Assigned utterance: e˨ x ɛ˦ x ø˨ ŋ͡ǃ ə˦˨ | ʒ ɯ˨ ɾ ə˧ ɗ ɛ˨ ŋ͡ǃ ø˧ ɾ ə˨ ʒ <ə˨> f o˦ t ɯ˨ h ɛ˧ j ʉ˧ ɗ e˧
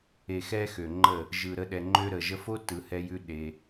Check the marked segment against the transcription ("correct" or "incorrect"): incorrect